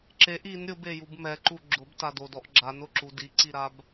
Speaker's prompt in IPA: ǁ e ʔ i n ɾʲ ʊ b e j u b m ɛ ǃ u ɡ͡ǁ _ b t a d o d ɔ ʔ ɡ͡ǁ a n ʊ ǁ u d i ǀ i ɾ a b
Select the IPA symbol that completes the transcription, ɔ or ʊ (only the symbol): ʊ